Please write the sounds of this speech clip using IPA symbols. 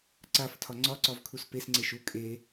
ǀ a f tʰ ɒ ŋ͡ǀ ɒ ǀ ɒ v kʰ u s p e s ŋ͡ǀ e ʃ u kʼ e

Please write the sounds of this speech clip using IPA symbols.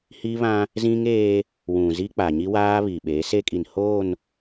h i˦ β ã˦ | z ĩ˦ ŋ eː˦ | w ũ˨ z i˦ k͡p a˨ ɲ i˦ w aː˦ β i˨ ɓ e˨˦ s e˦ kʼ i˨ n h oː˦˨ n

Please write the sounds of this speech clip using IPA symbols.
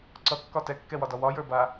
ǀ ʌ kː ɒ t ɛ kː ɛ w ɒ d ɒ w ɒ j ə˞ b a

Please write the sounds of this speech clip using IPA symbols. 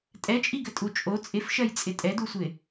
tʼ ɛ t͡ʃʼ i ɡ ɘ tʼ u t͡ʃʼ o t͡sʼ ɪ f ʃ ɜ j t͡sʼ ɪ tʼ ɛ d u sʷ ɪ

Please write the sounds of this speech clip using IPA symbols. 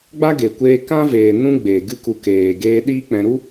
ɡ͡b a˦ ɡ e˨ kʷ eː˧ k ã˦ v eː˨ n ũ˦ ɡ͡b eː˨ ɡ ɨ˦ k u˧ k eː˨ ɡ eː˧ ɗ iː˦ k͡p ɛ̃˧ ɾ u˦

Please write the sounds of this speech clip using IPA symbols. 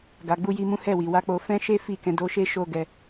ɡ a˧ ɡ͡b u˦ j i˦ m ũ˦ h ɛ˦˨ w i˨ w a˧ k͡p o˧ f ɛ̃˦ ʃ e˦ f i˦˨ k ɛ̃˧ d o˧ ʃ e˦ ʃ o˦ ɡ ɛ˧

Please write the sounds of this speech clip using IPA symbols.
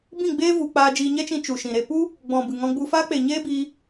b ĩ˦˨ ɡ͡b eː˦ v u˧ k͡p aː˧ d͡ʒ iː˧ ɲ ɛ˦ t͡ʃ ĩ˧ t͡ʃ u˨ ʃ ĩ˨ ɾ e˧ p u˦ | ɡ͡b ɔ̃˨ b ɨ˨ ŋ ɔ̃˧ ɡ͡b u˧ f aː˦ k͡p e˨ ɲ eː˦ b iː˧

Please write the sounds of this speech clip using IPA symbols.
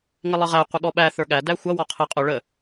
ŋ ɪ lˠ ə ʁ æ qʷ ɪ ɠ ɔ ɓ æ θ ə˞ ɠ æ d æ xʷ ʌ w ɔ qʰ ɪ qʼ ʊ ɭ ə

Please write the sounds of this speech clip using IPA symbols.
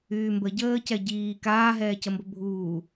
yː m b ə ɟ əː c ɛ ɟ iː k aː ɦ ɛː c ə m b ə bʱ uː

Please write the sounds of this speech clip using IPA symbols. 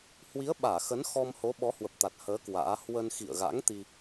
h w i˨˦ ə̯ ɓ aː˧˩ x ə˨˦ n x ɔ˧ m h o˨˦ ɓ ɔ˨˦ h w ə˨˩ p̚ t̪ a˨˩ t̚ h əː˨˦ k w a̰ː˧˥ h w ə˧ n x ḭ˧˨ ə̯ ɣ a̰˧˥ ŋ t̪ i˧

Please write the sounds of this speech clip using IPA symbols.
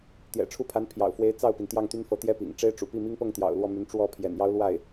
t̪ j ɛ̰˨˩ ʈ͡ʂʰ u˥˩ pʰ a˧˥ n pʰ j ɑ̰˨˩ ʊ̯ f w e˧˥ ɪ̯ t͡s ɑ˥˩ ʊ̯ p i˩ n t̪ j ɑ˥˩ ŋ t̪ y˥ n f ɤ˧˥ t̪ j ɛ˥ p ḭ˨˩ ŋ ʈ͡ʂ e˥ ɪ̯ ʈ͡ʂ ṵ˨˩ p i˥˩ m i˥ ŋ p ɤ˥˩ ŋ t̪ j ɑ̰˨˩ ʊ̯ l w ɔ˥˩ m y˧˥ n ʈ͡ʂ w ɔ˥˩ pʰ j ɛ̰˨˩ n j ɑ˥ ʊ̯ l w a˥˩ ɪ̯

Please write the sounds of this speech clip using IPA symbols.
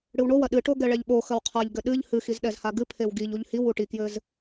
ɽ ɨ w ɳ o w ɐ ɗ ɨ ʈ o ɡ ɛ ɭ ɛ ʎ ɓ o x ɐ w qʰ a ʎ ɡ ɘ ɗ ɨ ʎ h ɨ x i z ɗ ɛ z h a ɡ ɨ pʰ e w ɡ i ʎ u ʎ h i w u ʈ i k j ɘ z

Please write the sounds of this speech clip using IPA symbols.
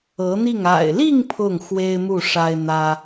ɤ˧˥ n̪ i˥˩ ŋ a̰˨˩ ɪ̯ l i˥˧ ŋ pʰ ʊ˥˩ ŋ x w e˥ ɪ̯ m u˥˩ ʂ a˥ ɪ̯ n̪ ä˥

